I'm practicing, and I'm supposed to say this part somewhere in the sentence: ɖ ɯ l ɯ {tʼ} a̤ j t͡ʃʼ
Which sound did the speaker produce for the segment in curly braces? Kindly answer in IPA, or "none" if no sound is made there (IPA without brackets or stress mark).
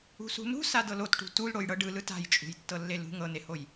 t